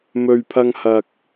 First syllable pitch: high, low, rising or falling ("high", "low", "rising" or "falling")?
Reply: low